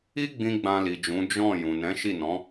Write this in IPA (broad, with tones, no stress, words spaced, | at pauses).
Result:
i˦ ɡ͡bĩ˦ɡ͡bã˧li˨d͡ʒũ˨˦ d͡ʒɔ̃˦˨ jũ˨nɛ̃˨˦ʃi˦˨nɔ̃˨˦